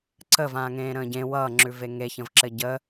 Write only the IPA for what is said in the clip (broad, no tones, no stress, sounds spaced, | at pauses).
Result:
ǀ ə v ãː ŋ ẽː ɾ ə̃ː ɟ ẽ w ʌ ŋ͡ǁ ʉ v e ŋ e ç ə̃ v ǁ ɘ ɟ ə